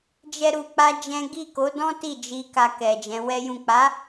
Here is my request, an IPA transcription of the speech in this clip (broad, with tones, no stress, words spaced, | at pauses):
d͡ʒɛ˦ɾu˧k͡pa˦d͡ʒɛ̃˦ ɡi˦˨ko˨˦dɔ̃˦ ti˦˨d͡ʒi˧ ka˧ kɛ˨d͡ʒɛ̃˨˦wɛ˦jũ˦˨ k͡pa˨˦